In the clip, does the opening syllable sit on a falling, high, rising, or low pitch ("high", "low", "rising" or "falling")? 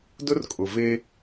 high